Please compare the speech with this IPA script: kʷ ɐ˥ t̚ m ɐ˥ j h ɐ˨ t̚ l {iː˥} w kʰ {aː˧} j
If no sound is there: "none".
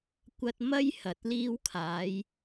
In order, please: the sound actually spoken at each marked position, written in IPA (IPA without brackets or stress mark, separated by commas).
iː˥, aː˨˥